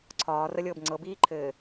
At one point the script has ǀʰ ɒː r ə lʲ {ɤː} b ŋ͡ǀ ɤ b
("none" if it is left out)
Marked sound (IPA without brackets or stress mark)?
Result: ɤː